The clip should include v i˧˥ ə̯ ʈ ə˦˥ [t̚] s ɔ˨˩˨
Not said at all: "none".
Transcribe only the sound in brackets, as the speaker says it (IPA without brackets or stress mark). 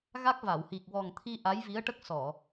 k̚